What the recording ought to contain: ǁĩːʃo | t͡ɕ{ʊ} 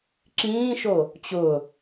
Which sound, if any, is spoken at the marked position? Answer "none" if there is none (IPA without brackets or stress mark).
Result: ʊ